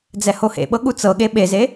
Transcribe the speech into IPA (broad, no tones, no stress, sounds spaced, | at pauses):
d͡z ɛ h o h ḛ ɓ ɤ ɠ u t͡s ɤ ɠ e ɓ e z e